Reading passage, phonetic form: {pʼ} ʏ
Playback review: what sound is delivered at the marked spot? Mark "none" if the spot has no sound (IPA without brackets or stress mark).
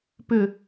p